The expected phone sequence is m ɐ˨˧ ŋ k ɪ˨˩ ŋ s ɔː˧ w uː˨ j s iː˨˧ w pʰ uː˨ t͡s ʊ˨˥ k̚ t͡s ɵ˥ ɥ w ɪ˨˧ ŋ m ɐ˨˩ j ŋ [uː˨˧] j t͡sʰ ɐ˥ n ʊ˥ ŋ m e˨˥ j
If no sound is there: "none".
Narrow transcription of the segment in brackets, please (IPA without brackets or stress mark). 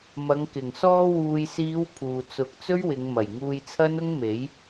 uː˧